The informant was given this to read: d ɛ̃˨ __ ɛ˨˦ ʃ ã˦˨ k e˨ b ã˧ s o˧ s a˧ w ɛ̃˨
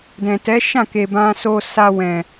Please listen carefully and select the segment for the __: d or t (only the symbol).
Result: t